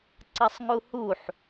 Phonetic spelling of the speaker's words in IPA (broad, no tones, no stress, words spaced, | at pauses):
ǀɐsˤŋuhuħ